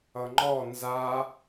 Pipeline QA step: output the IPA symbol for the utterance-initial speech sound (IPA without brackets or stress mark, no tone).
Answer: ʌ